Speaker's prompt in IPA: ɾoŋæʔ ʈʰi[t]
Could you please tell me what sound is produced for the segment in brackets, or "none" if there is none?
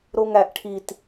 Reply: t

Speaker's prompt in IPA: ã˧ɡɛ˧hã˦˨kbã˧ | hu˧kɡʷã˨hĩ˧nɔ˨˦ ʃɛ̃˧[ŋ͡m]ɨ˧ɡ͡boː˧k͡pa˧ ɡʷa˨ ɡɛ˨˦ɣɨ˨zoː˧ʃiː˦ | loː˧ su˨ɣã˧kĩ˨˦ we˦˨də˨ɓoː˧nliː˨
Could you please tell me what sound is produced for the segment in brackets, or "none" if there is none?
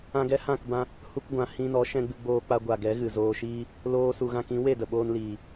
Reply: ɡ͡b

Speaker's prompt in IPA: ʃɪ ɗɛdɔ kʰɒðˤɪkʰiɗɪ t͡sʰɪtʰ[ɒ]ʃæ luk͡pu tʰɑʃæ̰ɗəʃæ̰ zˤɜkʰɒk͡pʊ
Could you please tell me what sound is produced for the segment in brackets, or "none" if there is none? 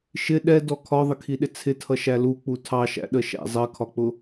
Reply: ʌ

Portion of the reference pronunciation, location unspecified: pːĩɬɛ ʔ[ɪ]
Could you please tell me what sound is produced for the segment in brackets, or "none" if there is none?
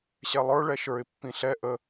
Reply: ə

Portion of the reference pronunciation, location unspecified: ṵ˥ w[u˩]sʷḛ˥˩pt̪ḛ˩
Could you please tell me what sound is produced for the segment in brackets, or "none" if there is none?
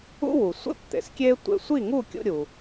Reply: u˩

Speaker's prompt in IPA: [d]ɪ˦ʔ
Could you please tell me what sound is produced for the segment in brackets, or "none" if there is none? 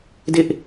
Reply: d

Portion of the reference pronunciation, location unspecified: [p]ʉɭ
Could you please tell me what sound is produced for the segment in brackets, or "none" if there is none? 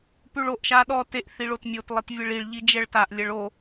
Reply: p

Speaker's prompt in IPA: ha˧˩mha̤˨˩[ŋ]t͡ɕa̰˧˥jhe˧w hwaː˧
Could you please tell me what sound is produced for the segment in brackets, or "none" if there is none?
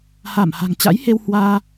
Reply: ŋ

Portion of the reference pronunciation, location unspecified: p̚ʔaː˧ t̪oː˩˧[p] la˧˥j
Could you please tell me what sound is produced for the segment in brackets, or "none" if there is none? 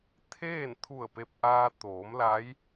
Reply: m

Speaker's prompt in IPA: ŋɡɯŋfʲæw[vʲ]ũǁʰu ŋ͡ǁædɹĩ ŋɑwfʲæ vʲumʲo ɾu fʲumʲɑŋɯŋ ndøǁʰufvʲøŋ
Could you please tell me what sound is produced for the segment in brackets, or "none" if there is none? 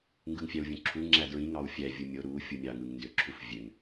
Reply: vʲ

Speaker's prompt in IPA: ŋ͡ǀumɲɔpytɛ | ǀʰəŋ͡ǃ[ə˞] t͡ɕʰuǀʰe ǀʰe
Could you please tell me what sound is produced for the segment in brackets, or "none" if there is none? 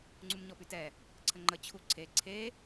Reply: ə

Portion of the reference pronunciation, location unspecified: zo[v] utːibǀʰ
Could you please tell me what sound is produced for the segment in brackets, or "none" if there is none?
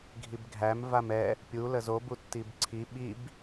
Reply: b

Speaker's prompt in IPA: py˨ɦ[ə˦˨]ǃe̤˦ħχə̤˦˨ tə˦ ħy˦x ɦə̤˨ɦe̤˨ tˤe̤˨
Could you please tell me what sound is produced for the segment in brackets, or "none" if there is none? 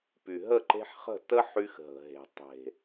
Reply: ə˦˨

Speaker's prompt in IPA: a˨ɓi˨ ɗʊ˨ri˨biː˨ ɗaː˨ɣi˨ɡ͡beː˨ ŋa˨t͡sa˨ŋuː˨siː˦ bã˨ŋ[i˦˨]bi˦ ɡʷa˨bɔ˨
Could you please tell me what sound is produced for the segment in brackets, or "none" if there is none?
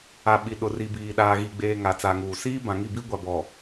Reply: i˦˨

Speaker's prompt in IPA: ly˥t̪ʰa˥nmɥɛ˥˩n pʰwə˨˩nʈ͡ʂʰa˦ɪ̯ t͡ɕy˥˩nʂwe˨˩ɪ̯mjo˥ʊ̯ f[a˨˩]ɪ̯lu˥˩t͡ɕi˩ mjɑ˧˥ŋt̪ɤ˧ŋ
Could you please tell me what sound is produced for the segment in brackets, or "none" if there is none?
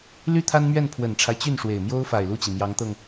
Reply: a˨˩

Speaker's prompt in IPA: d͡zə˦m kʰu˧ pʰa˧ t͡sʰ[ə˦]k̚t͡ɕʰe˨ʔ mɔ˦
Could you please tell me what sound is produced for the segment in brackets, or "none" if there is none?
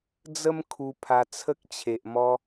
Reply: ə˦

